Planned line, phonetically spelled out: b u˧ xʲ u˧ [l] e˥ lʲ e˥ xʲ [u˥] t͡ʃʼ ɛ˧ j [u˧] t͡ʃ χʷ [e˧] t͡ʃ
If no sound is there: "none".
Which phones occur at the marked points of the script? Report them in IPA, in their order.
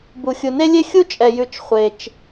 n, u˥, ʉ˧, e˧

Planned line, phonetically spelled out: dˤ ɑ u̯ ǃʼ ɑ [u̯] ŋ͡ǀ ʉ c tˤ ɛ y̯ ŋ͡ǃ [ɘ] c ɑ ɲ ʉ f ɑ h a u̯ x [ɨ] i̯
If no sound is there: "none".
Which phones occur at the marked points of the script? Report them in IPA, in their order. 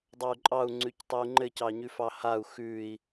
u̯, ɘ, ʉ

